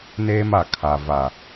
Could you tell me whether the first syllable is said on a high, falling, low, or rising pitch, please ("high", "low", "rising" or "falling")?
high